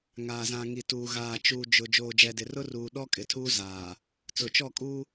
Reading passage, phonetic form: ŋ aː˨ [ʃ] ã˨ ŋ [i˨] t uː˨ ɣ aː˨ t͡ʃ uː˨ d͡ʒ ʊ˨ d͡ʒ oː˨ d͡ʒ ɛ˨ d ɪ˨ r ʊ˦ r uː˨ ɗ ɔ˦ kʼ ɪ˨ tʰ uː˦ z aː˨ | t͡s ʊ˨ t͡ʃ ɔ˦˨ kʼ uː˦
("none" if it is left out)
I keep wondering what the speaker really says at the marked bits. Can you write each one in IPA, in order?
z, i˨

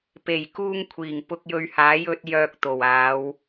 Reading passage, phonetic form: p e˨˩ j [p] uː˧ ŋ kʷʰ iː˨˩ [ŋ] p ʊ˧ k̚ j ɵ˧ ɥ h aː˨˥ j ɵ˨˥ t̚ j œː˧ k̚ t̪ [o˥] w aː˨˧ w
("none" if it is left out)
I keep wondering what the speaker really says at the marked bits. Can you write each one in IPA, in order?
k, ŋ, o˨˩

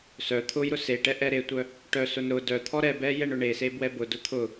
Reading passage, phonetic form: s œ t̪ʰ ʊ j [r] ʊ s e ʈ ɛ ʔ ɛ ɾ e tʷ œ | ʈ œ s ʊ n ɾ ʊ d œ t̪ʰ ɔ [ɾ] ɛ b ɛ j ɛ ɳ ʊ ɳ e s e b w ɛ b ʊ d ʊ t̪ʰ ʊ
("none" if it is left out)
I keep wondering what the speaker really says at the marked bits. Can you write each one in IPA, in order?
ɾ, ɾ

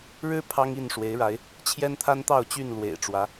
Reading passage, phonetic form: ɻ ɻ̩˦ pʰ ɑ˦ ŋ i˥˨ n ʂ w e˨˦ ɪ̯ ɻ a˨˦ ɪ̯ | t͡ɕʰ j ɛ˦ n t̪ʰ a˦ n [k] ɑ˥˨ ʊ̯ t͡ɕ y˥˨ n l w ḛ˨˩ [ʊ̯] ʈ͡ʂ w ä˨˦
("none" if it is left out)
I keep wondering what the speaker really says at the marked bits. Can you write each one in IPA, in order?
t̪, ɪ̯

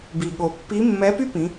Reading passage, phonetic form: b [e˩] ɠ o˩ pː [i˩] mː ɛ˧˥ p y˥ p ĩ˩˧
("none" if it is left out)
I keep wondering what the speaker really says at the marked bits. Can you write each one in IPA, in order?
i˩, i˧˥

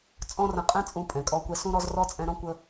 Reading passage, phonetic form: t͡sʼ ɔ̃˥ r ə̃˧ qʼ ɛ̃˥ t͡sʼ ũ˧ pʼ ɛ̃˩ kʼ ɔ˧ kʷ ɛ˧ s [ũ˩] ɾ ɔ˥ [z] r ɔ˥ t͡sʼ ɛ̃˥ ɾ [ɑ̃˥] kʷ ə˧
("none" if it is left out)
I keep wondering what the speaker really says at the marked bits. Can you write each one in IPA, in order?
ũ˥, z, ɔ̃˥

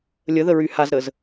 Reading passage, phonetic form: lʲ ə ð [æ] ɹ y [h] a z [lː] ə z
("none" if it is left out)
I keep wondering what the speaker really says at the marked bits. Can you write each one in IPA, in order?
ə, h, ɾ

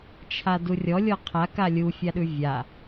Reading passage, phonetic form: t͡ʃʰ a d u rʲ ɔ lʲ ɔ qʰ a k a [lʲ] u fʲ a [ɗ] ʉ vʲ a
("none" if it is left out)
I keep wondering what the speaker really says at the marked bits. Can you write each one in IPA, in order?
lʲ, ɗ

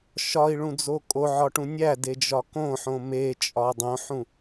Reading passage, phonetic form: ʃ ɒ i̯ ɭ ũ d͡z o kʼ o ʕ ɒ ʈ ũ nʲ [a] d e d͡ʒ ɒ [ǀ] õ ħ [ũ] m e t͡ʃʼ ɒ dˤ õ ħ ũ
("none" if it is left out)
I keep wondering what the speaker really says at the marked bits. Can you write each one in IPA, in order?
æ, k, õ

